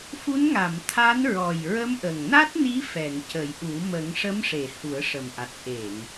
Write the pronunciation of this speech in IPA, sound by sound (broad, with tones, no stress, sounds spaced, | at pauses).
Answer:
f u˧˥ n ŋ a˨˩˨ m t̪ʰ a˧˥ n ɹ ɔ˨˩ j ɹ ə˧˥ m ʔ ə˨˩ ŋ n a˦˥ t̚ n i˧˥ f ɛ˨˩˨ ŋ c ə˨˩˦ j ʔ u˨˩˦ m ə˨˩˦ ŋ ʂ ə˧˥ m ʂ e˨˩˨ h u˨˩˦ ə̯ ʂ ə˨˩ m ʔ a˨˩ t̚ ʔ e˨˩˨ ŋ